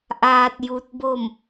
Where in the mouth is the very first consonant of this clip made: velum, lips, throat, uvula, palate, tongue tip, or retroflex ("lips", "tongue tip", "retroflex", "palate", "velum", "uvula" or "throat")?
throat